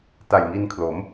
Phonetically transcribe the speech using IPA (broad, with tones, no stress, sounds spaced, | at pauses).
t a˨˩ j ŋ i˧ n kʰ l o˩˦ m